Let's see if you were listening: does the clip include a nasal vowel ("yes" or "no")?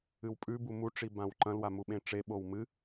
yes